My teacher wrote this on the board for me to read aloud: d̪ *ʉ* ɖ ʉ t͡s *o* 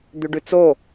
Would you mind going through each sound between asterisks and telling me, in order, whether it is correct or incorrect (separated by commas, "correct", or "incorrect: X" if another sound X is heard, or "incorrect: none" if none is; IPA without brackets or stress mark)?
correct, correct